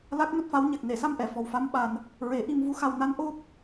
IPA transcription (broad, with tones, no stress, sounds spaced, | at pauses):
l a˦˥ k̚ n o˦˥ t̚ f a˧˥ w ɲ a˨˩ k̚ n e˨˩˨ s a˧ m ʔ ɛ˨˩˨ f ɔ˨˩ w f a˧˥ m ɓ a˧ n | ɹ e˨˩˦ ʔ i˧ m v u˧˥ x a˧ w n a˧˥ n ʔ o˦˥ p̚